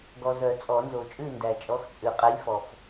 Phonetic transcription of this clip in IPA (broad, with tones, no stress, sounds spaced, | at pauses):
ɡ ɔ˨ z œ˨˩˦ t͡sʼ ɔ˨˩˦ n z o˨ t͡ʃʼ ʉ˥˨ n d æ˨ t͡ʃʼ ɔ˨˥ x t͡sʼ ʉ˨˩˦ qʼ ɛ˨˥ lʲ f ɔ˨ f